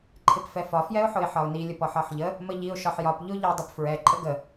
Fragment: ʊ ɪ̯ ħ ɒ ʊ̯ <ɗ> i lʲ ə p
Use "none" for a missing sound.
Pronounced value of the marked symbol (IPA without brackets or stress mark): n